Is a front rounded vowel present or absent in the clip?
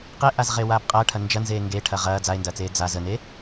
absent